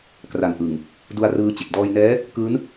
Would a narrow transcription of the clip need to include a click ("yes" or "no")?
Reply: no